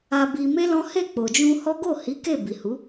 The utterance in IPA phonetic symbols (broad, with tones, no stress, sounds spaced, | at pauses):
a˧ b i˧ m e˦ l ɔ̃˦ h e˦˨ k͡p o˨ d͡ʒ ũ˧ h ɔ˦ ɡ o˦˨ h i˨˦ k e˦˨ b i˨ h u˨˦